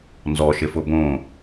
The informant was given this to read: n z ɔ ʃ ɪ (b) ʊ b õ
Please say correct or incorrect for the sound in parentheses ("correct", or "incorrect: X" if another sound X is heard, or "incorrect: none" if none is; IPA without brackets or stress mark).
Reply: incorrect: f